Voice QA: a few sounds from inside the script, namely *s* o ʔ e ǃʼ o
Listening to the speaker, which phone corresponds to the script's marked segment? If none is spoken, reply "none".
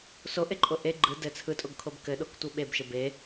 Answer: s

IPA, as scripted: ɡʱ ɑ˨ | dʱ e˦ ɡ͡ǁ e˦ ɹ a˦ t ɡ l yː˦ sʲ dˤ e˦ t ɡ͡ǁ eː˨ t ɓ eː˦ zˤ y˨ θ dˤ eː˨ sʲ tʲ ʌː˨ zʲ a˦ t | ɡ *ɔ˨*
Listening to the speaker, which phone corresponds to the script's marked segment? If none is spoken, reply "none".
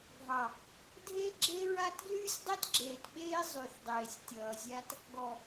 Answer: ɔ˨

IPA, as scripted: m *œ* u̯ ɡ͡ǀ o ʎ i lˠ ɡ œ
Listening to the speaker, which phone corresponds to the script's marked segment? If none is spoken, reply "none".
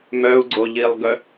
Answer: œ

